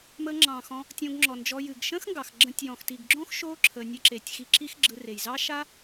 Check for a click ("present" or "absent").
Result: present